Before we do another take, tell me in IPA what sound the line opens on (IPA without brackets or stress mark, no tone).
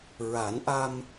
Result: ɹ